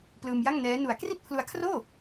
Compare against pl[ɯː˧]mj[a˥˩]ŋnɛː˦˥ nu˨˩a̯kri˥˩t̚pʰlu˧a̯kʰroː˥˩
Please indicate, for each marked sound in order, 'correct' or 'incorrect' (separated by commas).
correct, correct